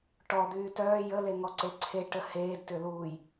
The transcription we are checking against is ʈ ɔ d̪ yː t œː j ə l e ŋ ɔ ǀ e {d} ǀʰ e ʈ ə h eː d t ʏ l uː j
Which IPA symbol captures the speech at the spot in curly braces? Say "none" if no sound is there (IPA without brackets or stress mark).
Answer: none